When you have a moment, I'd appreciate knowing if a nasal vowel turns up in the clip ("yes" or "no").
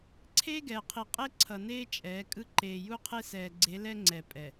no